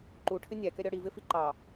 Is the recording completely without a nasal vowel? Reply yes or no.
yes